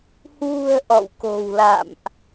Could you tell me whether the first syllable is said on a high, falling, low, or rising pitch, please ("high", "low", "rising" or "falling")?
low